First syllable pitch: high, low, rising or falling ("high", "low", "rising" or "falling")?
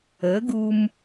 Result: rising